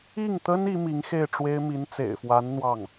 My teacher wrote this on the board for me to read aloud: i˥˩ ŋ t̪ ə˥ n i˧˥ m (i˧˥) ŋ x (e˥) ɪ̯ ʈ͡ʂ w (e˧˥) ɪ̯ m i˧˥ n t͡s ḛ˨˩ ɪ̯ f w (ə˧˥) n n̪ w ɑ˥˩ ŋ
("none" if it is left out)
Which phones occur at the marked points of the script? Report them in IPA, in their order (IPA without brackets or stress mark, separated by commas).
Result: i˧˥, e˥˩, e˥, a˧˥